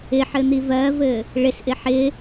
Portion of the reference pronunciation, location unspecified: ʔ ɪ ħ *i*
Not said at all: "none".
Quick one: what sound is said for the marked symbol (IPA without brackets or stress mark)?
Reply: ɪ